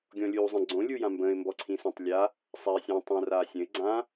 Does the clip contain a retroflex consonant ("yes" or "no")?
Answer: no